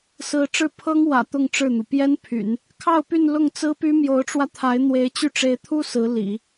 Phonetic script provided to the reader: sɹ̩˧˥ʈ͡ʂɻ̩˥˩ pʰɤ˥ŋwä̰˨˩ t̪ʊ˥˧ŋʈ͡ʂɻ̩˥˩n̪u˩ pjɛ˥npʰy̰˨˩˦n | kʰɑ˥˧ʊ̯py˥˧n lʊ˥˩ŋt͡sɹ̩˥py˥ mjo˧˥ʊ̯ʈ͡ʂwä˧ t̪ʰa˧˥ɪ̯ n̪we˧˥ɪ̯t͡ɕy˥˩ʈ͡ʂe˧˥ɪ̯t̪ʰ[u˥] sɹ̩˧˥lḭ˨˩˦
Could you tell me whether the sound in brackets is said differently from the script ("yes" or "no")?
no